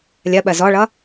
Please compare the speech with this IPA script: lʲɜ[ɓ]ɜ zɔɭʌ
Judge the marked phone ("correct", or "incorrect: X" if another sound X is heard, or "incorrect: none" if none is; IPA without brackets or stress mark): correct